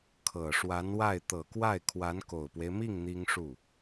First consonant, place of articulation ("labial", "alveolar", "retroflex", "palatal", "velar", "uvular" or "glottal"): velar